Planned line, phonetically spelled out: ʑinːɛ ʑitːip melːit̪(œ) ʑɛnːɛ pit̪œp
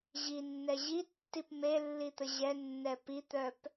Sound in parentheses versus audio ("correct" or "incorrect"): incorrect